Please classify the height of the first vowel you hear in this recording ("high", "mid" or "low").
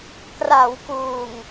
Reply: low